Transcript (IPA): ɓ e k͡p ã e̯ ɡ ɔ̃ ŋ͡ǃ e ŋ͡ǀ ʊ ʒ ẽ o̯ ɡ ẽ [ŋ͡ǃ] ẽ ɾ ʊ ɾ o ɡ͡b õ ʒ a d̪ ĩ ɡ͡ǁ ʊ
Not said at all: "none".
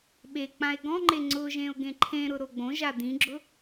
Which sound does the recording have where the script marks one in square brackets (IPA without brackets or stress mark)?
ǃʰ